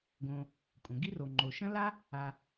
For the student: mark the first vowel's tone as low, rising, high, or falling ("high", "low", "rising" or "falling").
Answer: low